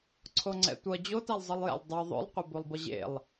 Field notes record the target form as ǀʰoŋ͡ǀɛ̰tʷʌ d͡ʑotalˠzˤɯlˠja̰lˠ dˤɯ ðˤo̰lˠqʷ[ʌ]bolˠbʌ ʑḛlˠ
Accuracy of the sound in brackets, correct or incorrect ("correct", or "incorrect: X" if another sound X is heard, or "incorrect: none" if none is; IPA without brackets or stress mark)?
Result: correct